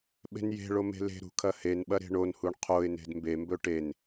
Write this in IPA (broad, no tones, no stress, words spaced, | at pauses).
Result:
ɓe̤nje̤ɭo me̤le̤ɾṳ kʰɐhenɓɐ ɾe̤ɳonhuɳ qʰoɪ̯ne̤d mbembɵ ʈen